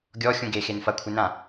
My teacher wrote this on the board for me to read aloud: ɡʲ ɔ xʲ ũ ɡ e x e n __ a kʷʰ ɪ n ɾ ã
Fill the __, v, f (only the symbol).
f